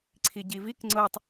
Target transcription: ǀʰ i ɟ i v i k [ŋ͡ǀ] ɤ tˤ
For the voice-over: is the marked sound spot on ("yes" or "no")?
yes